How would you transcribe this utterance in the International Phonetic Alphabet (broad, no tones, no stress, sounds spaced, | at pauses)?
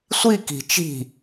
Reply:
sʷ i k i̤ t͡ʃ i̤